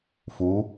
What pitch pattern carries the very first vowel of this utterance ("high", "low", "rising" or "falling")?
rising